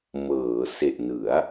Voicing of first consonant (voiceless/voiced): voiced